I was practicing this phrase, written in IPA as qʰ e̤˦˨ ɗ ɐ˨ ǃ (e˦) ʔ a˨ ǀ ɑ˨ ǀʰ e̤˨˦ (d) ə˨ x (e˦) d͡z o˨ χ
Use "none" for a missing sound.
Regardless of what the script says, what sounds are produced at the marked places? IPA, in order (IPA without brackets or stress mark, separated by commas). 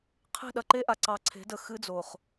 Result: e˦, d, ɨ˦